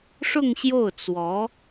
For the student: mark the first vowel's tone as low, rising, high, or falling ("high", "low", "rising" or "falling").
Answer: falling